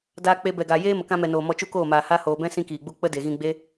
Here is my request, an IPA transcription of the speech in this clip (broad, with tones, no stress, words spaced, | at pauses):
daː˧k͡pe˧bɛ˨ɡa˨ jeː˦mə˨kã˧mɛ˨ noː˨mɔ˧ t͡ʃu˦koː˦˨maː˨ ha˦ hoː˨bɛ̃˦ sĩ˦kiː˨ɡ͡bu˦ k͡pə˦de˨ɣĩ˧ ɡ͡be˦